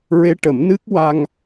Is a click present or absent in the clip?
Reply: absent